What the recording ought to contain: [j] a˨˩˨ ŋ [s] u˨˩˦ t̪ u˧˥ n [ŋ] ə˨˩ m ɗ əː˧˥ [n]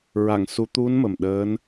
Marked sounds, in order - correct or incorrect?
incorrect: ɹ, correct, incorrect: m, correct

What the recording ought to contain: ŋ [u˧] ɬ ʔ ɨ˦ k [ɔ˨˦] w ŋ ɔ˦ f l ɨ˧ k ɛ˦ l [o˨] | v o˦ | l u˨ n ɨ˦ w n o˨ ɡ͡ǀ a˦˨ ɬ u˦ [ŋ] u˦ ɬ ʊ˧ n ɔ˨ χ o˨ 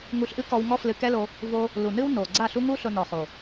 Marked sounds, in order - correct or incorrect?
correct, incorrect: ɔ˧, incorrect: o˧, correct

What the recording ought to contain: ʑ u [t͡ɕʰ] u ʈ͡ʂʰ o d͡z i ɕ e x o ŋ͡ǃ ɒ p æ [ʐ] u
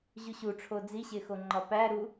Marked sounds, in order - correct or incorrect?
incorrect: ɕ, incorrect: ɾ

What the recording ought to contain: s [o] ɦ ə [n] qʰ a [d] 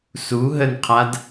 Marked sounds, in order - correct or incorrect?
incorrect: u, correct, correct

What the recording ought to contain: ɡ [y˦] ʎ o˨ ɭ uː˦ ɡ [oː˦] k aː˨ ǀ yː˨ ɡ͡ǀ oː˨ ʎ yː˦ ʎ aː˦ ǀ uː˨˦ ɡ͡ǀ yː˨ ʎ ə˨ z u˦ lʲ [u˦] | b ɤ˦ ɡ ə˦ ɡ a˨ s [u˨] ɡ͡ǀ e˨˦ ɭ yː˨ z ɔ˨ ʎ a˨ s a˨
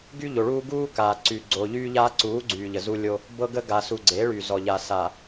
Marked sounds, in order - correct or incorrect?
correct, incorrect: uː˦, incorrect: o˦, correct

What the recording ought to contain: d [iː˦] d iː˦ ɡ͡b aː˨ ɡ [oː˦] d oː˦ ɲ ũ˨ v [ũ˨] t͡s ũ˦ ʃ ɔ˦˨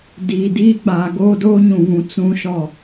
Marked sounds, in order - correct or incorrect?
incorrect: iː˨, correct, correct

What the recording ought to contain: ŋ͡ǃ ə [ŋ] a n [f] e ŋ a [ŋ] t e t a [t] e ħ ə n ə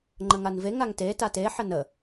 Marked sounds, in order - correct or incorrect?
correct, incorrect: v, correct, correct

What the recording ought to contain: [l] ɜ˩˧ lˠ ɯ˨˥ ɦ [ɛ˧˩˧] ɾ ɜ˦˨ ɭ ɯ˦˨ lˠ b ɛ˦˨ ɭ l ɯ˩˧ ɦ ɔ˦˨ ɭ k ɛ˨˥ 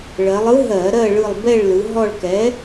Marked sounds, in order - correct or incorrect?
incorrect: ɭ, incorrect: ɜ˧˩˧

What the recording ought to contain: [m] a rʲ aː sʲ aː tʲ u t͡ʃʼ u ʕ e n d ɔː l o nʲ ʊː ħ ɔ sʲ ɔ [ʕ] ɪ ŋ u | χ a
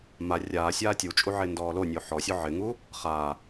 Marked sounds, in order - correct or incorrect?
correct, correct

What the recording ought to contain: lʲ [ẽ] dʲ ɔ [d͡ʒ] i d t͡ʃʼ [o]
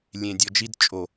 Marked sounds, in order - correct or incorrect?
correct, correct, correct

